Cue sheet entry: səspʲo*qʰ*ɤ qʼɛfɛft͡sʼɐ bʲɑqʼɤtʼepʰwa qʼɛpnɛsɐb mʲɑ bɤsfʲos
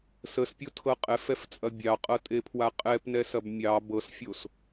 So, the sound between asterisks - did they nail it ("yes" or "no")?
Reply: no